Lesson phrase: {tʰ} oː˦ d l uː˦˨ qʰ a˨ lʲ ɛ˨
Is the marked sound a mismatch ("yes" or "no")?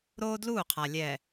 yes